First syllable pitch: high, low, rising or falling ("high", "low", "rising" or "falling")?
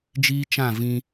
high